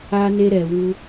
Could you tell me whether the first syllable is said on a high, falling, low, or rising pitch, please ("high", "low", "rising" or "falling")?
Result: high